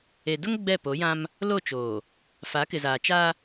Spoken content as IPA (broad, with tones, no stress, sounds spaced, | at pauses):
e˨ d ʊ˦ ŋ ɡ͡b ɛ˦˨ p o˨˦ j ã˦ m | l o˦˨ t͡ʃ oː˨ | f a˨˦ k ɪ˨ z aː˨ t͡ʃ a˦